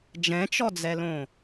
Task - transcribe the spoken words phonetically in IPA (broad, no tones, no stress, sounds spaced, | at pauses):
d͡ʒ ɛ̃ t͡ʃ ɔ d͡z ɛ l õ